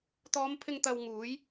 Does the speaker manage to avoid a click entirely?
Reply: yes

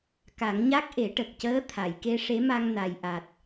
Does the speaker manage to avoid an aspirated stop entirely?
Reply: no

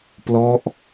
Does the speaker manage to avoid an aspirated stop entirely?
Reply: yes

